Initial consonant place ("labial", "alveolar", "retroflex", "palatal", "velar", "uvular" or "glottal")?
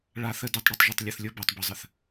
retroflex